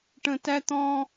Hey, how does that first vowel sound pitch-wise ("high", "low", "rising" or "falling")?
low